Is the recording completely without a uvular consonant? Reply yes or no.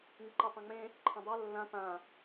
yes